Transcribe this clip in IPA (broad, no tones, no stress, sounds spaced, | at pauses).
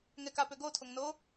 ŋ ɛ k a p ø ɡ o tʰ o ŋ n o